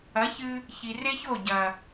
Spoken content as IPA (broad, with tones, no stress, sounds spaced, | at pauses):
ɐ˨˦ ç ɨ˧ | ç i˨ r e˦ ç o˦˨ ɟ ɐ˨